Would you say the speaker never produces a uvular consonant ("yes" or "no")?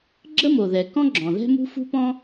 yes